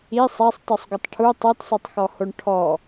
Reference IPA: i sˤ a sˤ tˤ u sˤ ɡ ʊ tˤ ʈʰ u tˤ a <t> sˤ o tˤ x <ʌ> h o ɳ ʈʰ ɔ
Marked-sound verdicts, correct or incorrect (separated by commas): correct, incorrect